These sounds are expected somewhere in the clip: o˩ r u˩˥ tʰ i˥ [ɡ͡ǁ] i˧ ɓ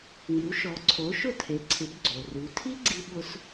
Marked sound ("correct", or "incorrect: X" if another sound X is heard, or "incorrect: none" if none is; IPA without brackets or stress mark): incorrect: ɡ͡ǀ